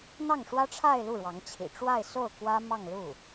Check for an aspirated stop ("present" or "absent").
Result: present